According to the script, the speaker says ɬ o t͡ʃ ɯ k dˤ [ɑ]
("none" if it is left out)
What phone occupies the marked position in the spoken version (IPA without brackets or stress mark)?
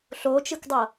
ʌ